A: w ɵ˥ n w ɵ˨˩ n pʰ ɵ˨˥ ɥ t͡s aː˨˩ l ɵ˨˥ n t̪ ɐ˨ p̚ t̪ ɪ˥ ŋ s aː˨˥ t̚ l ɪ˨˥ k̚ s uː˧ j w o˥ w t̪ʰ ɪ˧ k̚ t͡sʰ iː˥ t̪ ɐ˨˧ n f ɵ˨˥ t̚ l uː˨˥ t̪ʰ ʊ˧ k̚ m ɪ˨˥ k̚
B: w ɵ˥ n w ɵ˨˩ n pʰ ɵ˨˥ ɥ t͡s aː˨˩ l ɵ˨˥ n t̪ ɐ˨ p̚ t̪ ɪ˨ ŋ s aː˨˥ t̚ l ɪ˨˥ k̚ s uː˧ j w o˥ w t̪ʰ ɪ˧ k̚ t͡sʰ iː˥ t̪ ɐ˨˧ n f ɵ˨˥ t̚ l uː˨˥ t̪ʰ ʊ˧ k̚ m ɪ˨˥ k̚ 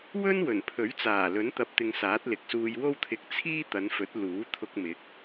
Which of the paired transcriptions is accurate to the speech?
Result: B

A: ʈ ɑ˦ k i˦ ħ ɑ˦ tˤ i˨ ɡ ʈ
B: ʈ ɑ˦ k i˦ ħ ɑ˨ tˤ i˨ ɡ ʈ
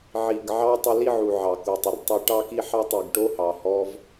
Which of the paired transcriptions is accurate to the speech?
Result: A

